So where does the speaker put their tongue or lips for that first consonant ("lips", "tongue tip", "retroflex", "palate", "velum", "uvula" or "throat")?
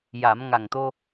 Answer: palate